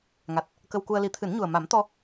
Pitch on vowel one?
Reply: low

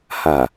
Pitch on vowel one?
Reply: low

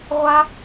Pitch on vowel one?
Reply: high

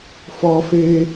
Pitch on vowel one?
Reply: high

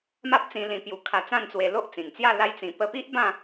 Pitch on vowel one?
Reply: high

